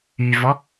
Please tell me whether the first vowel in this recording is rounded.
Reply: yes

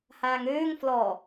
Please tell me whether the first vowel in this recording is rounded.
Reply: no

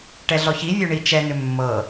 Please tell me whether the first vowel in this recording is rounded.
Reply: no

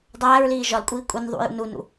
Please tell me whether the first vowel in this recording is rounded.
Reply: no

